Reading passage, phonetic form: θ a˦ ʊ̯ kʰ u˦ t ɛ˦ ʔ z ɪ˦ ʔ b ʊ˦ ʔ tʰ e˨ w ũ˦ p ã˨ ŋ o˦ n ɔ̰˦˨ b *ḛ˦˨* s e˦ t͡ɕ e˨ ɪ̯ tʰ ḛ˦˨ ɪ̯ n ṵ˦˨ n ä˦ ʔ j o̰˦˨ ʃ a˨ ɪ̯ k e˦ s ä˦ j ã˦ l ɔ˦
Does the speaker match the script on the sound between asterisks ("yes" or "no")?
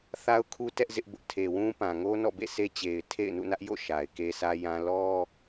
yes